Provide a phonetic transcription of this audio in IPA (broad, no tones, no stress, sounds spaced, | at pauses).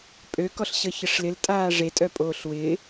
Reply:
pʼ ø k ɔ ɬ ɕ ə ç ə ʂ l ɪ l tʼ aː ʐ e tʼ œ pʼ oː ɬ w ɪː